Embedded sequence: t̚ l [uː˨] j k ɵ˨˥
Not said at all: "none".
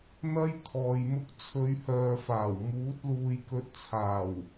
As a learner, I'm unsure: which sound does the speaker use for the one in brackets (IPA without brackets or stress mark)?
uː˨